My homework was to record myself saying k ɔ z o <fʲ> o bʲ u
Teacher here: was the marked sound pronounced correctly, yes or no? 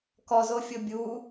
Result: yes